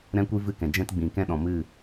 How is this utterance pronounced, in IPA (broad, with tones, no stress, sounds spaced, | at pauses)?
ɾ ɛ̃˦ kʷ i˦ v ɨ˦˨ k ɛ̃˨ d͡ʒ ɛ̃˦ t ɡ͡b ĩ˨ k ɛ̃˦ ɗ ɔ̃˨ m ɨ˦˨